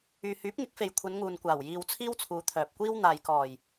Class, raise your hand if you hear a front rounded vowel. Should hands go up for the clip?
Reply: yes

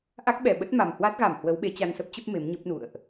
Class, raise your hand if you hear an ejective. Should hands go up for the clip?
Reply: no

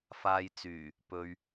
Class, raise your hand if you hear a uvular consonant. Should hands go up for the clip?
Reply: no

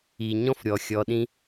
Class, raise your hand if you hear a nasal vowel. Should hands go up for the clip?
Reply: yes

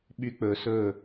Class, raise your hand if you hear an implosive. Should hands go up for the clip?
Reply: yes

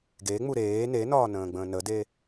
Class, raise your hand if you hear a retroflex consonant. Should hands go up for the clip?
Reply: no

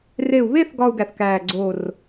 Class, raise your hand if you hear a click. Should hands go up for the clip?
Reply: yes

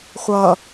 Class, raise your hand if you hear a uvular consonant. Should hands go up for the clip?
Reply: yes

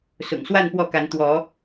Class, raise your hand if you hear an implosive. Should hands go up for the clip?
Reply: no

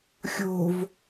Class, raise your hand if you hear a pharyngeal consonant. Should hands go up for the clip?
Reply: no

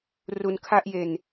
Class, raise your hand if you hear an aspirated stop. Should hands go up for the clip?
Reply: yes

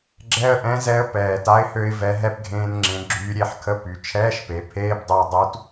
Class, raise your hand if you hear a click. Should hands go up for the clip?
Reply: yes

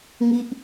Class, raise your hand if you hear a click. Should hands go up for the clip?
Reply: no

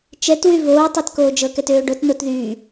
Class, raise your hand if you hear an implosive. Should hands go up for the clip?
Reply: no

